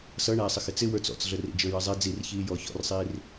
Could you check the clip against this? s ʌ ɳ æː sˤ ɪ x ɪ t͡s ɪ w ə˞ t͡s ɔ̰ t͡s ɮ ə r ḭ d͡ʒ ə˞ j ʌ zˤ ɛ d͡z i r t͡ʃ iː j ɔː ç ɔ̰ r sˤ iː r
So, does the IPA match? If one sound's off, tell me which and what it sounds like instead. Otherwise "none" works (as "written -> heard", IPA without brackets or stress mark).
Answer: t͡ʃ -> ç